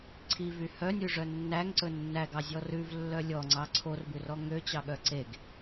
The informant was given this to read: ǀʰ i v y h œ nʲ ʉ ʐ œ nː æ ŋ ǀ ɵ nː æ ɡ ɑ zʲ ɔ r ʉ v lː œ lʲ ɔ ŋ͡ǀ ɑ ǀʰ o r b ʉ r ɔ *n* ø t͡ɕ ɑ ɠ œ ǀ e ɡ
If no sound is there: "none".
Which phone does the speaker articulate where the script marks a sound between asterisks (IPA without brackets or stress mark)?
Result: ŋ